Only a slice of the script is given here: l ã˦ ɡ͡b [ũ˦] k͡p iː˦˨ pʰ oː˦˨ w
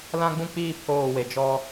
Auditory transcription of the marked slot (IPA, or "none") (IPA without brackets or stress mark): ũ˦